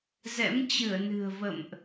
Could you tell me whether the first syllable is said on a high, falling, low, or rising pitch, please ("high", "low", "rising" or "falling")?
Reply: rising